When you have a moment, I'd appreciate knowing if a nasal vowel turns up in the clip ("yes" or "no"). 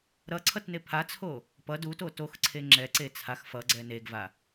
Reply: no